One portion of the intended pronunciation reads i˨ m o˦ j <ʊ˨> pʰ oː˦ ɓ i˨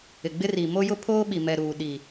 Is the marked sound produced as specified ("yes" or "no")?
no